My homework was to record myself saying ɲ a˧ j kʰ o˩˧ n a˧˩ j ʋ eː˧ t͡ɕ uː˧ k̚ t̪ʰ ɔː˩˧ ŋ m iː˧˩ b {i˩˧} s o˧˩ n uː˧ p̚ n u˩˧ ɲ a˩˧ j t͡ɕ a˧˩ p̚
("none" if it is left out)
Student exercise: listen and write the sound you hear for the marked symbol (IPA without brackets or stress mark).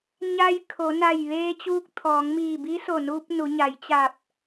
i˧˥